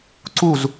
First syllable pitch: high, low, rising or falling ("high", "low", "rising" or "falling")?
falling